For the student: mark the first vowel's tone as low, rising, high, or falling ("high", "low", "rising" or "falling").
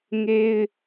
high